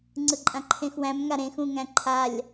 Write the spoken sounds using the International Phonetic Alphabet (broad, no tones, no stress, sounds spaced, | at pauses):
ŋ͡ǀ ɯ ǃʼ ã ǃʰ ẽ x w æ̃ m ŋ a ɾ ẽ x ũ ŋ æ̃ ǃʰ a lʲ